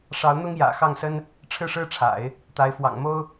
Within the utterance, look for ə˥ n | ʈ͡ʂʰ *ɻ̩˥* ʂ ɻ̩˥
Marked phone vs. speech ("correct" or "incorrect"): incorrect